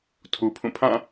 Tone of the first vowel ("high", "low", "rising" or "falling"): low